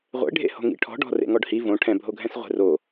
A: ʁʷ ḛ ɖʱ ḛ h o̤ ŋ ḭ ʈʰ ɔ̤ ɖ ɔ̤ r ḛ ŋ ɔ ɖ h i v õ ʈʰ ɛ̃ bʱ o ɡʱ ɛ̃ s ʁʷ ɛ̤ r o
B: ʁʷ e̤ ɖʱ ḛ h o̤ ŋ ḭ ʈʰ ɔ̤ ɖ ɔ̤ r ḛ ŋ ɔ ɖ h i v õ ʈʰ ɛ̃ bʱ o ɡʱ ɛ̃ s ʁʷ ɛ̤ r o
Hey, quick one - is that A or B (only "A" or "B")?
A